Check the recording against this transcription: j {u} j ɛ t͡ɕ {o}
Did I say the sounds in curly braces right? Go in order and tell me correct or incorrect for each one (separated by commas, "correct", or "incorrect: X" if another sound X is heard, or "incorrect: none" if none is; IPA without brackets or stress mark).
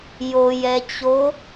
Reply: incorrect: o, correct